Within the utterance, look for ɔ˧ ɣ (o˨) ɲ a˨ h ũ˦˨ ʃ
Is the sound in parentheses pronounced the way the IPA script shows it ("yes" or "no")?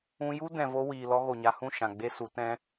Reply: yes